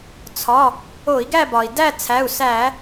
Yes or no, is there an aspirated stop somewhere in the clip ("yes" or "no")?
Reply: yes